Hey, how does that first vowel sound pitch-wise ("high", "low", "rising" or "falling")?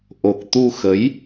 low